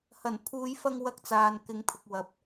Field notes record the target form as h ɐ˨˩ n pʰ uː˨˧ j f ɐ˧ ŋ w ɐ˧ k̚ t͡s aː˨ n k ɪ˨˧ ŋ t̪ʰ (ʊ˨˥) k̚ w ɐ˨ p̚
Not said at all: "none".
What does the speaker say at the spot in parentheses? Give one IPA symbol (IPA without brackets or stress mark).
ʊ˨